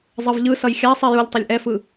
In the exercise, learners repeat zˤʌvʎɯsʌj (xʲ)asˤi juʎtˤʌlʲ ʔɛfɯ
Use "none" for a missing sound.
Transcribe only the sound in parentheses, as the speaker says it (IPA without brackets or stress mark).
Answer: xʲ